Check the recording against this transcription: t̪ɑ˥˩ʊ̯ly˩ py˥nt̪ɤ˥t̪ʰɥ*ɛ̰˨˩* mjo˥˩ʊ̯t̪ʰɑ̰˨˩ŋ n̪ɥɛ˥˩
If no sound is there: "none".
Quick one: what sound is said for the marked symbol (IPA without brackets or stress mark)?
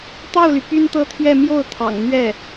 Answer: ɛ˥˧